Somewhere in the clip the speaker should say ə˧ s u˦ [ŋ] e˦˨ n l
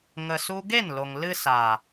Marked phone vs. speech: incorrect: ɡ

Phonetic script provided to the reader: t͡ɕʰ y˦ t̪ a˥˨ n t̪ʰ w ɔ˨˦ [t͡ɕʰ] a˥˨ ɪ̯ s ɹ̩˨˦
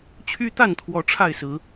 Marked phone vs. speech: incorrect: ʈ͡ʂʰ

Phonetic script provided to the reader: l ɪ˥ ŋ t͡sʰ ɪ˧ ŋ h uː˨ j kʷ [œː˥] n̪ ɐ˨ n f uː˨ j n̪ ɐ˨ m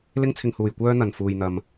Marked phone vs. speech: correct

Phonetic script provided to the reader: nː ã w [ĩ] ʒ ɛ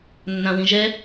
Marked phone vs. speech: correct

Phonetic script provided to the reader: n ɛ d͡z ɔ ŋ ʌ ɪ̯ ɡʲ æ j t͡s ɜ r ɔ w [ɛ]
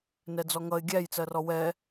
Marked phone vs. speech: correct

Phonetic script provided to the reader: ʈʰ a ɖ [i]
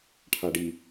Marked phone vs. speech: correct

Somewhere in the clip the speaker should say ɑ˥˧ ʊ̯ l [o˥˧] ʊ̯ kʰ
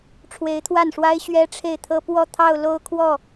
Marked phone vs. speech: correct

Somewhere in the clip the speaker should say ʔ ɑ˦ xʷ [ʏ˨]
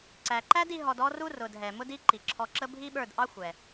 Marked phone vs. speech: incorrect: ɛ˨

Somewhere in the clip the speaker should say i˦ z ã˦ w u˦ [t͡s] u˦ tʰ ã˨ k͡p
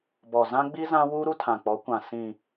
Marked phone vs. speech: incorrect: ɾ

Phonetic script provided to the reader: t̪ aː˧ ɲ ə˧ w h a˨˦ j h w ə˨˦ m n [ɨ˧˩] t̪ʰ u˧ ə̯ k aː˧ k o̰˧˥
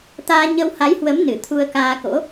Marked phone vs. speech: correct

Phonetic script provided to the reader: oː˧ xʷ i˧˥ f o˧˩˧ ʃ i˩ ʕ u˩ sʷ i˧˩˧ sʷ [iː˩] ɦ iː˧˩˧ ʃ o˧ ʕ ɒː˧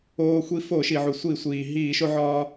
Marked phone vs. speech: correct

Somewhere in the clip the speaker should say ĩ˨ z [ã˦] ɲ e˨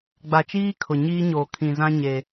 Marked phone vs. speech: correct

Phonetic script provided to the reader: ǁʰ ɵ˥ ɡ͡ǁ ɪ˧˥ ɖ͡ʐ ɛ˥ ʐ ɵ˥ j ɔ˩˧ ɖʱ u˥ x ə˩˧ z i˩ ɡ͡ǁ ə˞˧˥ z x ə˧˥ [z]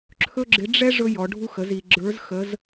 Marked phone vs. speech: correct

